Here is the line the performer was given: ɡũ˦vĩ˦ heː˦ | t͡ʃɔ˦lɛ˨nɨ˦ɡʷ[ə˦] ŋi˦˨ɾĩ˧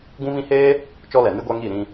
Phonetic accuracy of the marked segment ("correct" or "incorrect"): incorrect